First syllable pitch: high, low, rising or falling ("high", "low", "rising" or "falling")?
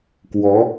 rising